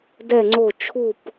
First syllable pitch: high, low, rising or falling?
falling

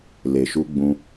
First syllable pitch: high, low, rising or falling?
low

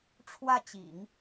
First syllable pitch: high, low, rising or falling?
falling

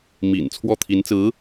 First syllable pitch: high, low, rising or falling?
low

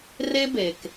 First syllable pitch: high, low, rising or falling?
high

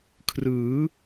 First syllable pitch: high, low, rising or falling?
rising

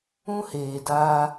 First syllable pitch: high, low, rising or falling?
high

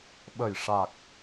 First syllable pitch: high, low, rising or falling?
low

